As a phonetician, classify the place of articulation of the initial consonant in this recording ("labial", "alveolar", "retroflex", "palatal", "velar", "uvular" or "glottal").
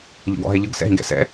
palatal